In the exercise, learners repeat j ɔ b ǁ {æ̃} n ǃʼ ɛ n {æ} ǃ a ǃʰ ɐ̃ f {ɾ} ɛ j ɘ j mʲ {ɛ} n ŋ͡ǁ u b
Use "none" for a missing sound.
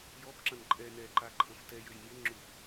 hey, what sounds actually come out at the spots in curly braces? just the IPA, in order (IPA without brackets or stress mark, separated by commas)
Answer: ɐ̃, ɛ, t, ɘ